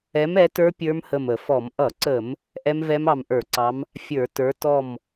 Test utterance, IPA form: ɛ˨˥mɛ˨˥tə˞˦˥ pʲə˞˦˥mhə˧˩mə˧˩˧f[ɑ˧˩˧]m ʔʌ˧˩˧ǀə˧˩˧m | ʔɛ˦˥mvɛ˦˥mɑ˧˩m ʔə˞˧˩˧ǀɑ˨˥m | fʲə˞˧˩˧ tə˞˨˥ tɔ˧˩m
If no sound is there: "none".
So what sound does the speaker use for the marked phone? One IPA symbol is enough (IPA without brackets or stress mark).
ɔ˧˩˧